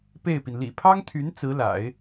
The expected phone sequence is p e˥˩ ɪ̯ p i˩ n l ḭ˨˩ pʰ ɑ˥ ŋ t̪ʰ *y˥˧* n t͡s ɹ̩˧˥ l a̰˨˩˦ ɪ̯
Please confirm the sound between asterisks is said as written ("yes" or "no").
no